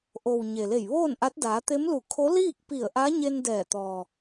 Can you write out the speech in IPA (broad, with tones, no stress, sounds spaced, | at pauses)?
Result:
ʔ o˩ w ɲ e˩ l e˧˩ j ʋ oː˥˨ n ʔ a˧˥ t̚ d aː˩˧ t̪ e˧˥ m l u˧˩ kʰ o˧˥ l iː˥˨ k̚ p i˧˩ ə̯ ʔ a˧˥ ɲ e˧ n d ɛː˧˩ t̪ ɔː˩